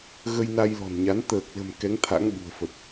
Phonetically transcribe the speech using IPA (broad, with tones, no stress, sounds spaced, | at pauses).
ɣ ə˧ j n a˧ j l ɔ̤˨˩ n ɲ a˨˦ n t̪ əː˨˩ k̚ l ə̤˨˩ m k ɛ˨˦ ŋ t̪ʰ a̰˧˥ ŋ ɓ ṳ˨˩ ə̯ f ə˨˩ t̚